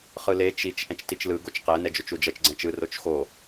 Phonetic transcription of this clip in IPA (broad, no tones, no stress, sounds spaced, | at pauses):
χ ɯ l e t͡ʃ i t͡ʃ ʔ ɛ̃ t͡ʃ t i t͡ʃ l ɯ ɡ o t͡ʃ q ɛ n ɛ d͡ʒ o t͡ʃ u d͡ʒ ʌ t͡ʃ ɡ͡ǀ ɛ̃ t͡ʃ ɯ r o t͡ʃ x o